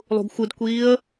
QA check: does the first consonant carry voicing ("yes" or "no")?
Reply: yes